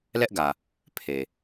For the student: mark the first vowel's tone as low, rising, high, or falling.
high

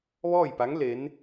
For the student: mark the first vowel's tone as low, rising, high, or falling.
falling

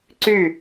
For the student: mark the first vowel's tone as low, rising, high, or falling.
falling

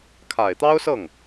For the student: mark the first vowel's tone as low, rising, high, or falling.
low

